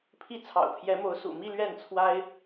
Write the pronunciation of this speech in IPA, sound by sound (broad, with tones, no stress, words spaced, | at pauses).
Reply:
pʰi˥˩ t͡sʰɑ̰˨˩ʊ̯pʰjɛ˧˥mo˧˥ʊ̯ sṵ˨˩mi˥˧ lɥɛ˥˩nt͡sʰwa˥ɪ̯